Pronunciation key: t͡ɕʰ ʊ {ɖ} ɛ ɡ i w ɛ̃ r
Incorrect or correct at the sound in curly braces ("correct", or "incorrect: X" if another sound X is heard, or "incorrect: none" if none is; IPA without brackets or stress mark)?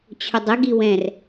incorrect: dˤ